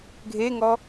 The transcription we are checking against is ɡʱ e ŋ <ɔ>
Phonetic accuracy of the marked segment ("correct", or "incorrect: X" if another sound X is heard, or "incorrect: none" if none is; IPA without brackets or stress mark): correct